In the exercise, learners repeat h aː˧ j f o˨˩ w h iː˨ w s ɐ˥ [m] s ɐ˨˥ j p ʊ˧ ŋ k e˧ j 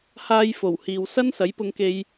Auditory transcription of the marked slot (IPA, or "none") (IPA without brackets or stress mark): n